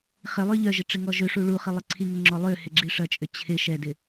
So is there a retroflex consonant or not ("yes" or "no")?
yes